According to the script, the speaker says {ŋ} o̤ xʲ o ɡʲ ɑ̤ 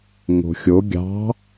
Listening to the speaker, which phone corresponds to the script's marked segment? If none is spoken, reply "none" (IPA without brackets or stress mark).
ŋ